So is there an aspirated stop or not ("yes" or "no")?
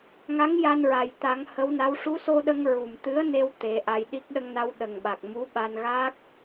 no